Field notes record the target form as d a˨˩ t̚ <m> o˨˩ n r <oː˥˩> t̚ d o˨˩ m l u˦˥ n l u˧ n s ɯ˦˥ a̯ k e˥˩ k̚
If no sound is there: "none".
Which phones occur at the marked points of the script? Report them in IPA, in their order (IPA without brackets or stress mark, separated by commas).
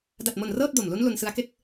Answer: m, ɤː˥˩